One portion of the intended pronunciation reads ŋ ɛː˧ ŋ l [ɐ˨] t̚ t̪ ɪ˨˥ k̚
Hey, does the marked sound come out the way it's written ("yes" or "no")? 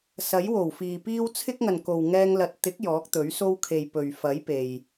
yes